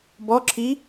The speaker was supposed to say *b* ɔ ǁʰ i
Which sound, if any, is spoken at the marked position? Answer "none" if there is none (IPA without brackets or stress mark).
b